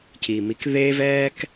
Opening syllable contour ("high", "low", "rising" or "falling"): low